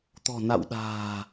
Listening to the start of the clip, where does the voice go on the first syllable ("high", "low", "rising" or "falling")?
low